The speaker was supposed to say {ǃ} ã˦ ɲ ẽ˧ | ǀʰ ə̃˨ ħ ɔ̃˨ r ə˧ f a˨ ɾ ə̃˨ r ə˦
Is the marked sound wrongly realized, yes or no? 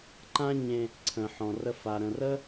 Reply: no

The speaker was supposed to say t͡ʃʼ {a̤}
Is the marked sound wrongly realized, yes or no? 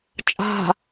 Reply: no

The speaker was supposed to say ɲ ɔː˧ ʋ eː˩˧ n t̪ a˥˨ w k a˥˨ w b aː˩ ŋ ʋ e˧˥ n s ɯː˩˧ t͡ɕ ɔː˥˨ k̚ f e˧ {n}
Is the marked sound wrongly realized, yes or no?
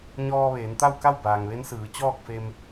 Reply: yes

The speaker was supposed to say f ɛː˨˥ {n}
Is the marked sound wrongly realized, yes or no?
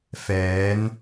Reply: no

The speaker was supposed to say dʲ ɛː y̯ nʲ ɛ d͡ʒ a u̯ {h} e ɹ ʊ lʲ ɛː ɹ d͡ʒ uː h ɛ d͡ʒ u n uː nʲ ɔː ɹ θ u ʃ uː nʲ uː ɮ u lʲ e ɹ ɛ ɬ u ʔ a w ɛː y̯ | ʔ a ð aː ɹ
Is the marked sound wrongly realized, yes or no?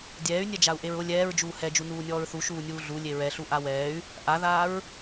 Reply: yes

